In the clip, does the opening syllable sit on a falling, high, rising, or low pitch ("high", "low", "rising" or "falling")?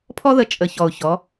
high